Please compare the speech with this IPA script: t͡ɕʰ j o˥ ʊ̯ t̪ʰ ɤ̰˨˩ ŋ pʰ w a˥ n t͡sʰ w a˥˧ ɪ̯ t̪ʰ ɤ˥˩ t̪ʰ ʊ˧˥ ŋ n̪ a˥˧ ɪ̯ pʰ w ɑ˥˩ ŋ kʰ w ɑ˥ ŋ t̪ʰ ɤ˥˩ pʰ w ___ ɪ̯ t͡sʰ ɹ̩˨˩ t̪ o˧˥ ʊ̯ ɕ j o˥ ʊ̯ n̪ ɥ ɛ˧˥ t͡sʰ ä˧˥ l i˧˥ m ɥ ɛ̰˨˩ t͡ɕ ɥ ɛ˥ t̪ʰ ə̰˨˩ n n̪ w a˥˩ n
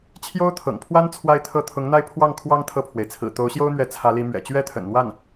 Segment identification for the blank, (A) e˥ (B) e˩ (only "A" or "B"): B